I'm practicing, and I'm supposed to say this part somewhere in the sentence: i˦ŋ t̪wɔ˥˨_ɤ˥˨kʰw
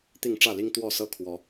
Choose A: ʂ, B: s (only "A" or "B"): B